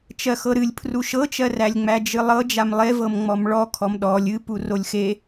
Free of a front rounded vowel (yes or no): yes